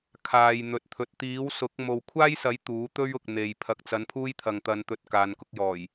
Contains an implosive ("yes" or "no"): no